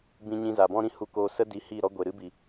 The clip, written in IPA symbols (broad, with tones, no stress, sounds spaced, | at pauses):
b ĩ˧ ɲ ĩ˧ z a˨ b ɔ̃˦ ɾ ĩ˧ h u˧ k oː˧ s ə˦ d i˧ h i˦˨ ɾ ɔ˦ ɡʷ e˨ ɾ ɨ˦ b i˨